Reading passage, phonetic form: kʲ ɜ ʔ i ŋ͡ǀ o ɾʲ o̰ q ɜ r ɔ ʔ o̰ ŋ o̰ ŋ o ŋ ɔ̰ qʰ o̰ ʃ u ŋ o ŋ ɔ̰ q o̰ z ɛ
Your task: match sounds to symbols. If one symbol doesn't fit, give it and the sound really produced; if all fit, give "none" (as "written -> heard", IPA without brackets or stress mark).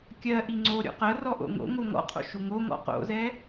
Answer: none